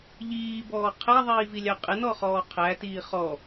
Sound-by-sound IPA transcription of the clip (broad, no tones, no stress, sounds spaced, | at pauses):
ʎ iː b ɔː qʰ ɛ ðˤ iː v i lʲ ɑ qʼ ɪ n ɔ χ ɔː qʰ æ t iː χ ɔ